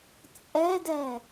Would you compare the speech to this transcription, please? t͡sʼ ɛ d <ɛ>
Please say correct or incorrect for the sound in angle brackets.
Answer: correct